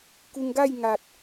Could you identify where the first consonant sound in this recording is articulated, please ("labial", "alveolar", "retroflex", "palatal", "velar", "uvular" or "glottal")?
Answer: velar